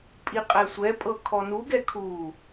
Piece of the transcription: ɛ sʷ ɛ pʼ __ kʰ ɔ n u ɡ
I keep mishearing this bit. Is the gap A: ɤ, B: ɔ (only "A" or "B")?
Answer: A